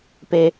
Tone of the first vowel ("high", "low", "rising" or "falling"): low